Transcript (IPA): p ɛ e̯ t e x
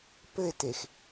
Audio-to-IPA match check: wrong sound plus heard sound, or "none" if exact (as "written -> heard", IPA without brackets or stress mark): ɛ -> ɘ